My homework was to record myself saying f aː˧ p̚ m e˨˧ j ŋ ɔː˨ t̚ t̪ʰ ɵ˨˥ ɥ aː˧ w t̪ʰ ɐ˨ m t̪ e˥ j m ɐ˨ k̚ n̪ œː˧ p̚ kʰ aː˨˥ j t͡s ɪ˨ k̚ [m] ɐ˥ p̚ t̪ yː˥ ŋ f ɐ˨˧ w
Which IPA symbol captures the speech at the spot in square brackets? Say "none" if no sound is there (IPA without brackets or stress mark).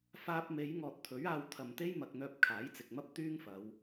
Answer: m